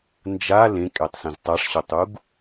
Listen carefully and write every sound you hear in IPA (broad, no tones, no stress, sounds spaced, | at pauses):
n d͡ʒ a l ẽ kʼ ɛ tˤ s ẽ z tˤ a ʂ ɕ o tˤ u ɡ